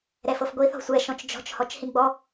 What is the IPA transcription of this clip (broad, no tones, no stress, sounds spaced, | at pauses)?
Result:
ɾ ɛ f ɤ f ɡʷ i θ ɔ̤ sʷ ɛ ʃ ɔ̃ t͡ʃ d͡ʒ ɔ̤ t͡ʃ h ɔ t͡ʃ h ĩ ɡ͡b ɔ